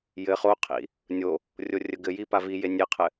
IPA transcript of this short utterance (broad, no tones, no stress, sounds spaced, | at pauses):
j ɘ χ o qʰ ḭ | nʲ o | rʲ o rʲ ə ɡ ɘ j i p a v i j e nʲ e qʰ ɘ